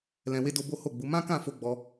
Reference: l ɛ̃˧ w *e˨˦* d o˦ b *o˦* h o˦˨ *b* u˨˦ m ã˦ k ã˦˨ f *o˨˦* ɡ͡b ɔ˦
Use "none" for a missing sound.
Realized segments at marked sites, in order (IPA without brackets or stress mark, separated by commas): e˦, o˦, ɡ͡b, o˧